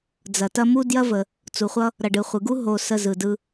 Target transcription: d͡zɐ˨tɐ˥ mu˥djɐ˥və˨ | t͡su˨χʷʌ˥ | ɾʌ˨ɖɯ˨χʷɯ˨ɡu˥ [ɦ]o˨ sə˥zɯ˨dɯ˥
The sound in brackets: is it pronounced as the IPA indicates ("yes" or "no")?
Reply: yes